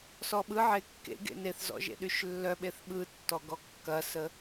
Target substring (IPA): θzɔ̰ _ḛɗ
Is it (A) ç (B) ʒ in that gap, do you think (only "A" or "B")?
B